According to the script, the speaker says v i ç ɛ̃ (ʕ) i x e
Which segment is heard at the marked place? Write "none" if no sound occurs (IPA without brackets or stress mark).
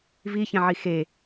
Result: ʕ